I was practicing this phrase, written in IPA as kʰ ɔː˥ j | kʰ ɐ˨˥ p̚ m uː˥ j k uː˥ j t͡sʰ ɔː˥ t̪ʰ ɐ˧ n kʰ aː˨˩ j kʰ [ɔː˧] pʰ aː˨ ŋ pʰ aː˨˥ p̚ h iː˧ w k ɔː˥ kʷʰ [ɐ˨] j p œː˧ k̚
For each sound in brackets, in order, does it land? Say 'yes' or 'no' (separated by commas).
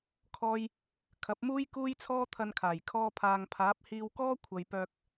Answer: yes, yes